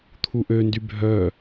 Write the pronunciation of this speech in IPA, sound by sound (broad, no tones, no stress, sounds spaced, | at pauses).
t̪ʰ u ʔ ø n d y bʱ œ